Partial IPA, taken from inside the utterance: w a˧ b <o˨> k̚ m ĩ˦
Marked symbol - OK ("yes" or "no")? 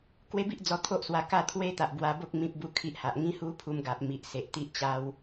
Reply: no